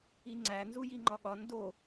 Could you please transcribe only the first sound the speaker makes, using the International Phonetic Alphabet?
i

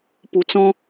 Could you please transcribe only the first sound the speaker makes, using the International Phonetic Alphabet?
p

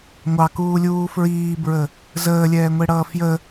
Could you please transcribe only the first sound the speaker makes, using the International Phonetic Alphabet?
ŋʷ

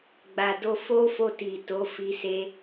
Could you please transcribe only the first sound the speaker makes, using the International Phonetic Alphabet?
ɡ͡b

